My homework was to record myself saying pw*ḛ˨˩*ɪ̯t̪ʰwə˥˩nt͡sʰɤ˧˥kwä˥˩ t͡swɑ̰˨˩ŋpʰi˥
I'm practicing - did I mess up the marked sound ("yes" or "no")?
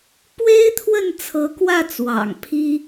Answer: yes